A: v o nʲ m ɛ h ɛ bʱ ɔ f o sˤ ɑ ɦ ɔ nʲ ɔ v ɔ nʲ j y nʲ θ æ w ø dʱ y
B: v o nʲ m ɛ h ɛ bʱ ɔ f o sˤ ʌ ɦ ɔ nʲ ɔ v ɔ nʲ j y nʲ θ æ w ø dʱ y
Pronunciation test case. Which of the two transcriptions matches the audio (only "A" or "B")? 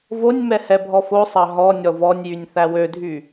A